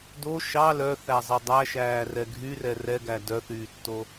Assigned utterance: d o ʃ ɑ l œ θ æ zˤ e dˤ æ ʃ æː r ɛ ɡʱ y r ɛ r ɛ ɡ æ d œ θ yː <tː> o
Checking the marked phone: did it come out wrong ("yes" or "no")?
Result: no